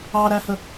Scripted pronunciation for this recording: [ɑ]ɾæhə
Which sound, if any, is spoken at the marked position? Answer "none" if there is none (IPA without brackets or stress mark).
ɑ